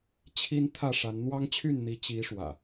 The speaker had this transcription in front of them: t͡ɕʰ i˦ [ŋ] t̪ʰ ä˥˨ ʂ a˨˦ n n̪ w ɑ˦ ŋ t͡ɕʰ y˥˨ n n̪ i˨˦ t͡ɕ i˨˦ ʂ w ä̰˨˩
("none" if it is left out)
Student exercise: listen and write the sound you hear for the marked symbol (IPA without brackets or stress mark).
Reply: n